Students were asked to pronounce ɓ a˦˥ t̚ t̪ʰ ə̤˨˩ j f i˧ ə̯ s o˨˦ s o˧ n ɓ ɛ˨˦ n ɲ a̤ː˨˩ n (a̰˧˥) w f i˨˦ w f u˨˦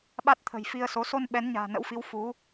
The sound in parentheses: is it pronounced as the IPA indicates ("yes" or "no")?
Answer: no